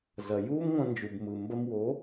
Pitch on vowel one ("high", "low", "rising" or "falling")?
low